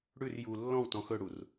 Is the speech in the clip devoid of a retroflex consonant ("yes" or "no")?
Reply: no